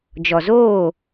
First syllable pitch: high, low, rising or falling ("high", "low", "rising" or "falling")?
low